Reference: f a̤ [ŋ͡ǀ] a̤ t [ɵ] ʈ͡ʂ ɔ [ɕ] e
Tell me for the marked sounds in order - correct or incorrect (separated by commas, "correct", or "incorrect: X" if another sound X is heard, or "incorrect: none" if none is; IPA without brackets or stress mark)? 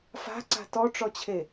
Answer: incorrect: ǀ, incorrect: ɔ, incorrect: t͡ɕʰ